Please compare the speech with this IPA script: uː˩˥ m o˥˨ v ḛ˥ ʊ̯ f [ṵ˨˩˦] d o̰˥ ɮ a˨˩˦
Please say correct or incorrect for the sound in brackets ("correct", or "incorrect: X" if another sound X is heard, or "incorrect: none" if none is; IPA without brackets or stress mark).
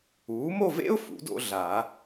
correct